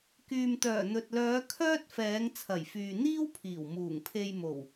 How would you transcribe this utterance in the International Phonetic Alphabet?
k yː˨ m t̪ œː˨˩ n̪ ɵ˨ t̚ l œː˨˧ kʰ œː˥ t̚ f ɛː˨˧ ŋ t͡sʰ ɐ˨˩ j f yː˨ n̪ iː˥ w pʰ iː˨˩ w m uː˨˩ ŋ pʰ e˧ j m o˨˩ w

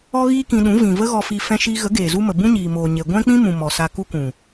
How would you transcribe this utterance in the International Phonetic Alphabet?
ɔ˦ ɣ iː˦ k ĩ˧ ɗ ũ˨˦ v ĩ˨ v ə˦ ɣ ɔ˧ f i˧ f ɛ̃˧ ʃ iː˧ ɣ ə˨˦ ɡ eː˨ z u˦ m ə˨ b ũ˦ ɲ iː˨ m oː˨ ɲ e˨ ɡʷ ɛ̃˦ k͡p ĩ˦ m ũ˨ m ɔ˨ s a˧ k u˦ k ũ˨

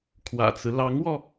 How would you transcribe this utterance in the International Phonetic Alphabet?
kʰ w ä̰˨˩ t͡s ɹ̩˦ l ɑ˧˥ ŋ w ɔ˧

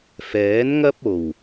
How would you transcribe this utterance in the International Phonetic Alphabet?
f ɛː˨˥ n ŋ ɐ˥ p̚ o˨˩ w

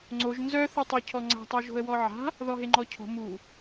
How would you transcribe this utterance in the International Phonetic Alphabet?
ŋ͡ǀ o ʒ n z œ θ o tˤ o cʰ ɔ ŋ͡ǀ a̤ tˤ œ ʒ o̤ ə̯ w ɔ ʕ a̤ | ð ɔ ɦ e ŋ͡ǃ ɔ cʰ o̤ m u

